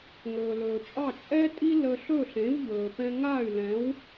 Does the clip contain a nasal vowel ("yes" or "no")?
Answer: yes